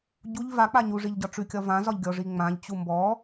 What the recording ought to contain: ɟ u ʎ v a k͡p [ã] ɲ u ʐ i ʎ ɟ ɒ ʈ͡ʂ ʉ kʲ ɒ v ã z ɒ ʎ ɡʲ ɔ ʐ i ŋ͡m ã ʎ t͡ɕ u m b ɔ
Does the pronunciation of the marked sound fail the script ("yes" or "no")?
yes